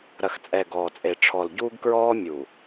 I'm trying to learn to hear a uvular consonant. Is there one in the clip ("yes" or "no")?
no